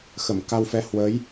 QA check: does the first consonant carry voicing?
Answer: no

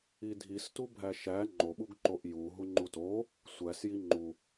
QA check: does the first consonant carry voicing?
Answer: yes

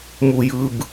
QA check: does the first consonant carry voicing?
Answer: yes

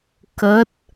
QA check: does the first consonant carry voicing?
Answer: no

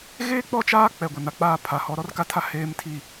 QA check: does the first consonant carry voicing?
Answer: yes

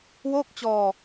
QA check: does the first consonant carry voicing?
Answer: yes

